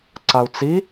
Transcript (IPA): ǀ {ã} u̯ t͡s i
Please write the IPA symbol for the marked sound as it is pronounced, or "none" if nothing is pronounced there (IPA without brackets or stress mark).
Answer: a